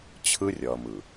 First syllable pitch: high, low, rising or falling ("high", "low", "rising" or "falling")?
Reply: high